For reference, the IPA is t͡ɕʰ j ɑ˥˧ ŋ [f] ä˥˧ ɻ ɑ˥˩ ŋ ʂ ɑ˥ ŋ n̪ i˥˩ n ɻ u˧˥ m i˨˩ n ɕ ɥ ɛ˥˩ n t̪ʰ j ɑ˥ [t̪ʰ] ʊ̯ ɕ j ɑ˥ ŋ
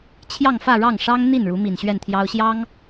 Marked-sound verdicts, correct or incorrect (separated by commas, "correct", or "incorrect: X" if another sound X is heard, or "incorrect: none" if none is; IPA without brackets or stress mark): correct, incorrect: none